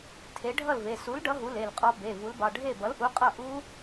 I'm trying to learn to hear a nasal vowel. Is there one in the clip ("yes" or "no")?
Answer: no